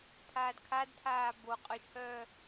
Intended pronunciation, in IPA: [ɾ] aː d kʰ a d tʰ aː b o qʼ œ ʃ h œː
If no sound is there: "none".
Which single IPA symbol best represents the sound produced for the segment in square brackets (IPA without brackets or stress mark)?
tʰ